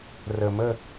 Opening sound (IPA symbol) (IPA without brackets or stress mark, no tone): r